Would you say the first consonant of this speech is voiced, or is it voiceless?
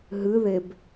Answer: voiced